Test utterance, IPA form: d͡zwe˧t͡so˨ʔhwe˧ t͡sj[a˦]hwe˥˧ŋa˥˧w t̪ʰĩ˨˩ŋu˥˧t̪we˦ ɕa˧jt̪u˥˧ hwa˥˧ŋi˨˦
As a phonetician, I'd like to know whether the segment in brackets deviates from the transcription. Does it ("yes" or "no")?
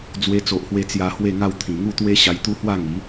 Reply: yes